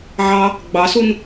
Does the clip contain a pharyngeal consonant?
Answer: yes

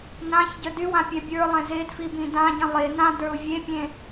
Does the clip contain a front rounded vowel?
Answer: yes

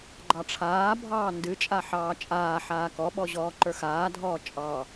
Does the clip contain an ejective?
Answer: yes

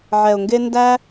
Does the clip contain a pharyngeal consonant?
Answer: yes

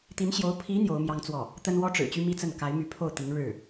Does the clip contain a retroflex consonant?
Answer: yes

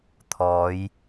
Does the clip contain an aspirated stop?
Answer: yes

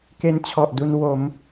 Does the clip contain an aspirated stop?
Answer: yes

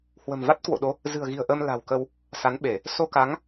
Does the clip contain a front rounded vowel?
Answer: no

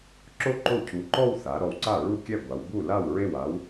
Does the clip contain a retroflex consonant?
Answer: no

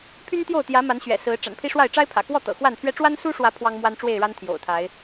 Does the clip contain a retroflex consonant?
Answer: yes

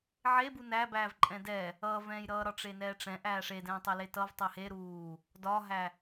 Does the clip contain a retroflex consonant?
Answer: yes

